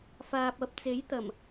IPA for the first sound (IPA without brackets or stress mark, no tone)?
f